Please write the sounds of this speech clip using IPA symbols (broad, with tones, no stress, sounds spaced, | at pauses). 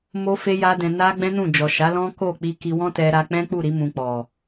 m o˦ f e˦ j a˦ d ɛ̃˧ n a˦ ɡ͡b ɛ̃˦ n ũ˦˨ d͡ʒ ɔ˨ ʃ a˨˦ l ɔ̃˦ k o˦˨ k͡p i˧ k i˧ w ɔ̃˦ t ɛ˧ ɾ a˧ k͡p ɛ̃˦ k͡p u˦˨ ɾ i˧ m ũ˧ k͡p ɔ˨